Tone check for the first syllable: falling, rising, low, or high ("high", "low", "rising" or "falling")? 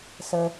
low